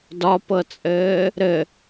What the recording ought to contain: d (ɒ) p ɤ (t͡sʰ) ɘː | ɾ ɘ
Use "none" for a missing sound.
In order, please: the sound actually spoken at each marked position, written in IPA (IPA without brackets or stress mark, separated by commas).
ɒ, t͡sʼ